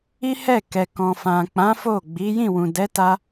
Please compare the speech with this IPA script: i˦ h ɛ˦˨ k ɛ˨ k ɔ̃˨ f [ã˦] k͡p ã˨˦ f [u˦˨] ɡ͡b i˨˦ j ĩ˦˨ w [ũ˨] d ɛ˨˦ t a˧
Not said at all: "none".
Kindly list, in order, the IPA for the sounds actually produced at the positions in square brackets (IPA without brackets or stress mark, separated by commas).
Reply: ã˨, o˦˨, ũ˨